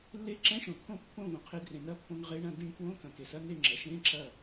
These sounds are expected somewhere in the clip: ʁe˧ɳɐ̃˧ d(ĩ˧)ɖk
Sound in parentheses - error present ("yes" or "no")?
no